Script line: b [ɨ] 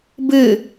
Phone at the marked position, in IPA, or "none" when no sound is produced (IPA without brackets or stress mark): ɨ